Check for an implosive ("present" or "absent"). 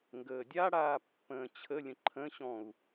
absent